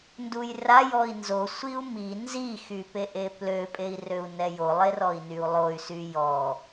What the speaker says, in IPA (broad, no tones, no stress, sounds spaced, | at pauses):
n d u j r a j ɔ i̯ n z o sʷ i u̯ m i n z i x y p e ʔ e p l ø pʼ e i̯ r ø u̯ n ɛ j o lˠ e r ɔ i̯ n y u̯ lˠ o y̯ s y j ɔ